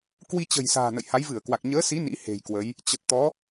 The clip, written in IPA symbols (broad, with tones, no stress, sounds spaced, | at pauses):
k w i˧ t͡ɕ ə̤˨˩ j s a̤ː˨˩ n ə̰˧˨ j h a˨˦ j v ɨ˧˩ ə̯ k w a˨˩ k̚ ɲ əː˨˦ s i˨˦ n ḭ˧˥ h e̤˨˩ j k w ə˨˦ j | t͡ɕ ə˨˩ t̚ t̪ ɔ˨˦